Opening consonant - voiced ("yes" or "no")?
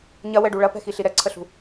yes